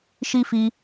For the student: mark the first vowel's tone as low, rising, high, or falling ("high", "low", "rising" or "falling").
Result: high